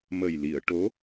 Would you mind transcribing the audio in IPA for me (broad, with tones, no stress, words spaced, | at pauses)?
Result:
mə˨˩jli˨˩˨ə̯ʈo˧˥